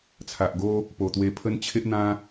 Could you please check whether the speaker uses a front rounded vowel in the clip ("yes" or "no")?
no